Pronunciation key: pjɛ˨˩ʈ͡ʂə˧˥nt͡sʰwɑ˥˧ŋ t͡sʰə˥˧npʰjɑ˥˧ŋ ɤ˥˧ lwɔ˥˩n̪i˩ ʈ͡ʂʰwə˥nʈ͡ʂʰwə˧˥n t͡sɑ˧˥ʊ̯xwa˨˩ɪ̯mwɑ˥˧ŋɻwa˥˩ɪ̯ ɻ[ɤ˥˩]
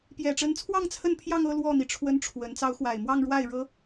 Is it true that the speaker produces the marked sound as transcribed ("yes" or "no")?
no